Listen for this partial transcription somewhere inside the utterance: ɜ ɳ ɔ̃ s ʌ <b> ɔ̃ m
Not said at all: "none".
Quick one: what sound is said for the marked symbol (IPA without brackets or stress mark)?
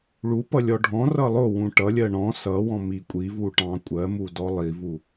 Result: w